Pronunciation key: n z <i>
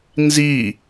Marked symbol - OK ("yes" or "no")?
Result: yes